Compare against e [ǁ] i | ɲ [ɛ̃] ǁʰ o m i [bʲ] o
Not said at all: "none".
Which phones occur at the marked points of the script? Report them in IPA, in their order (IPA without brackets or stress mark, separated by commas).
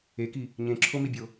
k, ẽ, bʲ